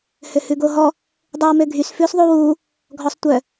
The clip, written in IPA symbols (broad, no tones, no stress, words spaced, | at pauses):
høhʉɡoɦɔ | dˤʉwmøɡʱys fʉsðˤuwu | ɡʱɔsˤtʷœ